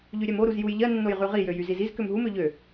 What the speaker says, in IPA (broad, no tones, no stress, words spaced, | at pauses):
ʎyɾʲɛmo ɾuzjuj ʎɜnːoj ʁyʁijøjy ziziz kømɦumø ʎø